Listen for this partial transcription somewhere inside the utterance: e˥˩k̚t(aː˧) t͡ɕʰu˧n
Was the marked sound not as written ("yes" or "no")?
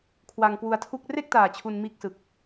yes